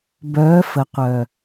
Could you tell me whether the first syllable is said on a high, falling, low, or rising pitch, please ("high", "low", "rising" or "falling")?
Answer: rising